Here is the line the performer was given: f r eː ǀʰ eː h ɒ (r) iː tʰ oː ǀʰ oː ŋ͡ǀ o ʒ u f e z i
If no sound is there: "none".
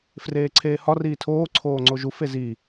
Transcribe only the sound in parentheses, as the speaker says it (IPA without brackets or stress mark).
r